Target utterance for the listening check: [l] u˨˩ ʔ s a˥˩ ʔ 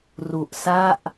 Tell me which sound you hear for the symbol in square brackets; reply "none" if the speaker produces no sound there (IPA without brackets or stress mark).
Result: r